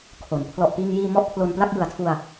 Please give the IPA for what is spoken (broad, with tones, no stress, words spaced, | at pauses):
kʰo˩˦n pʰlɔ˨˩ʔpiː˧ŋjiː˧ mɔ˥˩ʔpʰlo˧npla˥˩k̚ jɯ˨˩a̯tʰu˧a̯